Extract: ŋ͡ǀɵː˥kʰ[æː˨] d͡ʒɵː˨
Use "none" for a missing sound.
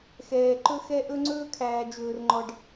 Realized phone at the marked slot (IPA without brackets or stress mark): æː˨